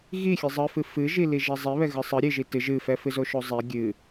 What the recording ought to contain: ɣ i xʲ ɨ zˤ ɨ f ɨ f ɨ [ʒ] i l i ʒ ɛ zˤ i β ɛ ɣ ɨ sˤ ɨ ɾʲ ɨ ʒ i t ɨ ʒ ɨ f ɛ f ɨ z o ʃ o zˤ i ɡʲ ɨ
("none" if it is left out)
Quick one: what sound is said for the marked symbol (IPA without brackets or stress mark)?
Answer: ʒ